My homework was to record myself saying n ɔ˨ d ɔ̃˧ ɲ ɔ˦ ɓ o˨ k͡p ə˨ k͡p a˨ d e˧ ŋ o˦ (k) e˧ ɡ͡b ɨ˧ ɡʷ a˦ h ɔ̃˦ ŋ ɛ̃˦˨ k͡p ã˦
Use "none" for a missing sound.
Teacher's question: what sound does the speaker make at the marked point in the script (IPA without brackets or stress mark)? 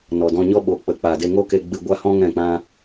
k